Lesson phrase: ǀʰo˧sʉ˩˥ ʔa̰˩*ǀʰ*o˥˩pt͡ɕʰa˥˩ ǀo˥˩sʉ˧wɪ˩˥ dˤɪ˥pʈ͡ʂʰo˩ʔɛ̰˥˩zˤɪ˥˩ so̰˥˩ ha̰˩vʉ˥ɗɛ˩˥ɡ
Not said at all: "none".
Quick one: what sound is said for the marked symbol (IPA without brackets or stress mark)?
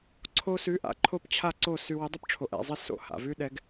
ǃʰ